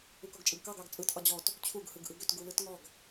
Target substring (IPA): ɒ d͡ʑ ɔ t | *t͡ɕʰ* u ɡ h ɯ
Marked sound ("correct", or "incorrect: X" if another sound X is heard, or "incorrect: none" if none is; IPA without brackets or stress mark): correct